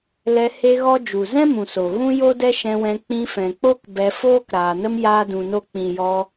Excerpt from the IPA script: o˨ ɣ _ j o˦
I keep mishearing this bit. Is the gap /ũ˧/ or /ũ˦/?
ũ˦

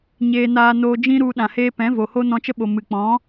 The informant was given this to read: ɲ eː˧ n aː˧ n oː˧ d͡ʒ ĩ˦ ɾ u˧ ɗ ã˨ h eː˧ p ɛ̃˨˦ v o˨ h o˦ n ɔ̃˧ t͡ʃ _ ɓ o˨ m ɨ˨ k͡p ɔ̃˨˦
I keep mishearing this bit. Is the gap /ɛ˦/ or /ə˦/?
ə˦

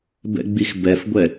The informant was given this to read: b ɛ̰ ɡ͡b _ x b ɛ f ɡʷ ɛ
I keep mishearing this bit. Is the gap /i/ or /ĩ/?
i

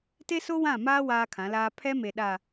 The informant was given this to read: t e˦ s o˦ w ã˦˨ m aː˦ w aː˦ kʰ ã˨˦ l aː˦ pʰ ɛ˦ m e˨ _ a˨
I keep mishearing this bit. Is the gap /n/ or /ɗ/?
ɗ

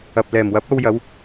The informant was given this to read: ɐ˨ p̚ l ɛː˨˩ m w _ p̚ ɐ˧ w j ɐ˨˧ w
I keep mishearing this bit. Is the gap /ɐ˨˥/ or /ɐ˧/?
ɐ˨˥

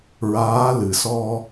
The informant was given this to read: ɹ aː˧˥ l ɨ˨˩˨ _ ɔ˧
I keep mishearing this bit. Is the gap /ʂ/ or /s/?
s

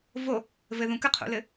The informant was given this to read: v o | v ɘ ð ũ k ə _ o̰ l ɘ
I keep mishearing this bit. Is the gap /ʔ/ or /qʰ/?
qʰ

